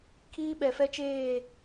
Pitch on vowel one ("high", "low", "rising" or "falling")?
high